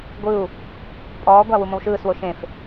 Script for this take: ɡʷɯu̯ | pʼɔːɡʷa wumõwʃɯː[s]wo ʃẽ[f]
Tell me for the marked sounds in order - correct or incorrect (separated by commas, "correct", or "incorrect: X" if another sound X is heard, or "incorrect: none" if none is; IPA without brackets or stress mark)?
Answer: correct, correct